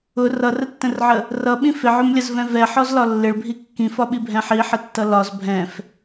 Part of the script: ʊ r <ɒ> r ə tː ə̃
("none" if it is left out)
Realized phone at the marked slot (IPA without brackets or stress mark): ʌ